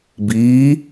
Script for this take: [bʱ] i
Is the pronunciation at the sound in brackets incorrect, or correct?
incorrect